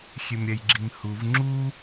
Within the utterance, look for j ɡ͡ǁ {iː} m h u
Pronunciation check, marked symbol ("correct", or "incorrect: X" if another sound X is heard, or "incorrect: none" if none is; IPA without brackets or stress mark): incorrect: i